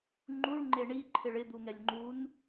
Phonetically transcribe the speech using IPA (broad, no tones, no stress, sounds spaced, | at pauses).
ŋ͡ǃ u ɭ ŋ͡ǃ e ɳ i ǃʰ ɪ ɭ ɪ d̪ u ŋ ɛ lʲ ŋ͡ǃ u n